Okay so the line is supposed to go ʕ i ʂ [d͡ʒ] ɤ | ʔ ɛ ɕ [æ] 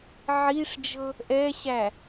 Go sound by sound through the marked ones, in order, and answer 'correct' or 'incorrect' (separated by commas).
correct, correct